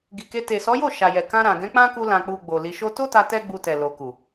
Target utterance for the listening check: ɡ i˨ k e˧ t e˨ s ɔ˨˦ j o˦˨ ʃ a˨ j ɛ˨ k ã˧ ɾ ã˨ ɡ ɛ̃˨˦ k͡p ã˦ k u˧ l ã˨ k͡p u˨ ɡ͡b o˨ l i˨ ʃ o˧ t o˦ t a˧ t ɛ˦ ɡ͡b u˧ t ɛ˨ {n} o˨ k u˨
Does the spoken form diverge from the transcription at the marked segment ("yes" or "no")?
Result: yes